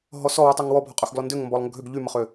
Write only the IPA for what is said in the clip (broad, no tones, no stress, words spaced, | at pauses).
ɦɔsɔwy tˤɛŋwɔbʱɔ qʼøxɡlɔndøŋ mbɔlˠŋəɡʱøɡ ʎyməχø